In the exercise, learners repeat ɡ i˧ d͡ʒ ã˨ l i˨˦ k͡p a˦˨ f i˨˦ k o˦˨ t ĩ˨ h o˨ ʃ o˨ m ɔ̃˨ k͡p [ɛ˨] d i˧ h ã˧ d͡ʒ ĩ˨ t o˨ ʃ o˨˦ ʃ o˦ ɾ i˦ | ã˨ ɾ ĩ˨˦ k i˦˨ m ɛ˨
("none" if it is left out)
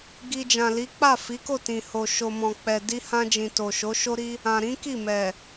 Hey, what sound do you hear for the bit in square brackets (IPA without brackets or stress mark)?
ɛ˨